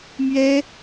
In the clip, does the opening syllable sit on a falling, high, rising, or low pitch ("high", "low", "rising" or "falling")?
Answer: high